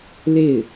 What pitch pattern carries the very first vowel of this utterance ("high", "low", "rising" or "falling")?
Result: falling